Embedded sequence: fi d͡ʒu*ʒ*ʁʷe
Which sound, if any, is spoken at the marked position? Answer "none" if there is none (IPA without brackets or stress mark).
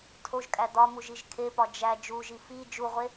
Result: none